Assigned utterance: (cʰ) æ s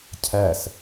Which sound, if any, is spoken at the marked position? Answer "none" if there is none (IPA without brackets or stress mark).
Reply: cʰ